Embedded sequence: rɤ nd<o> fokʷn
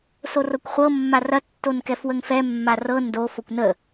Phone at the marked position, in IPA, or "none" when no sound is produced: o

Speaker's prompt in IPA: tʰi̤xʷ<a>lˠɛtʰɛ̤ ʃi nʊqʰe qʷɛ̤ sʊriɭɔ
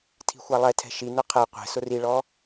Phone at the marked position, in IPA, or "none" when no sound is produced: a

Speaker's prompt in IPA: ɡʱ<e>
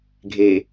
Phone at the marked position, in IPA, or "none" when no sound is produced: e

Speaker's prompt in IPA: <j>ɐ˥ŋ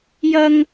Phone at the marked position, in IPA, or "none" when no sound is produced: j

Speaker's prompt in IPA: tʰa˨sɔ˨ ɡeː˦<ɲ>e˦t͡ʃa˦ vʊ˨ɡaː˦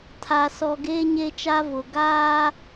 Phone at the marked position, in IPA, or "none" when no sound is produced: ɲ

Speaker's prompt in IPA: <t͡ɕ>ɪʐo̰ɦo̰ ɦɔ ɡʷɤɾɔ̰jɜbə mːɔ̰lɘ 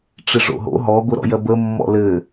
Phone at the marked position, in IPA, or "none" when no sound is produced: ʈ͡ʂ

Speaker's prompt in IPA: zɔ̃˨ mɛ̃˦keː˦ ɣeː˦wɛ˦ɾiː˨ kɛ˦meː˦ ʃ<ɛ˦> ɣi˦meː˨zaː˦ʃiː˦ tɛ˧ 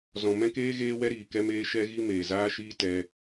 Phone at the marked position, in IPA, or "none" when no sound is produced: ɛ˦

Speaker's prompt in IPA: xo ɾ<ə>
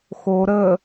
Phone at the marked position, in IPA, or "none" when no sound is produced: ə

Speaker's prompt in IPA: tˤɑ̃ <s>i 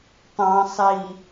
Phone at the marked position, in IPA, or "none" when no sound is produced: sˤ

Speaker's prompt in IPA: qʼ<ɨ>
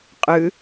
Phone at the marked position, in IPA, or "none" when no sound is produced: ɨ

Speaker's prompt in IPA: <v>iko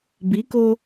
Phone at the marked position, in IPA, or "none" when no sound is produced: b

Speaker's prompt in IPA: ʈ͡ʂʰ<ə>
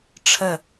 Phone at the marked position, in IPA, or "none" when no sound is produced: ə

